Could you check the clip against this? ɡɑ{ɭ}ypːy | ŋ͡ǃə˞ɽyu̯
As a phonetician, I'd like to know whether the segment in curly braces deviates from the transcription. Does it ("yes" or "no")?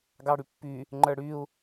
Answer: yes